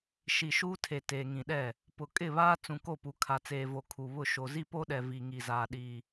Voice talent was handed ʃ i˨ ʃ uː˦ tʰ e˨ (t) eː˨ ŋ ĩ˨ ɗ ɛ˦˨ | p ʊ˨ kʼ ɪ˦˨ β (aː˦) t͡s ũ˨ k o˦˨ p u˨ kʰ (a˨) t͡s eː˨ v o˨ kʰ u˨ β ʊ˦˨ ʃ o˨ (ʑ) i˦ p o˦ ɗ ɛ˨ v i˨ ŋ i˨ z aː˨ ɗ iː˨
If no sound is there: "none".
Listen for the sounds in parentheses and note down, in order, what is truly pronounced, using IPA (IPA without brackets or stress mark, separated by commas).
t, aː˦, a˨, z